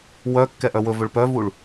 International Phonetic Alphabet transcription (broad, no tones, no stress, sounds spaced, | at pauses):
w œ kː ɛ ʔ œ w ɵ v ɵ ɭ p œ v u ɭ